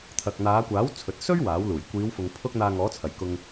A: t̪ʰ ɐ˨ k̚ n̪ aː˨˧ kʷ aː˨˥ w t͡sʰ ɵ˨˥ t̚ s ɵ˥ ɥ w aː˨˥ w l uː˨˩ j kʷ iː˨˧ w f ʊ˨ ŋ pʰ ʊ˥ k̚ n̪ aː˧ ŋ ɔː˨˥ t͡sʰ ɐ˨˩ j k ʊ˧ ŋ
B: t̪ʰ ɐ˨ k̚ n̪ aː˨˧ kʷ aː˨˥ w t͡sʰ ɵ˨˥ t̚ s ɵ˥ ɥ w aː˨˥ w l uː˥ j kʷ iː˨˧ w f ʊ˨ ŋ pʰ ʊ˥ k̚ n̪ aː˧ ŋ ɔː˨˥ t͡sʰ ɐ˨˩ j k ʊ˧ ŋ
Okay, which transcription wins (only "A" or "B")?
A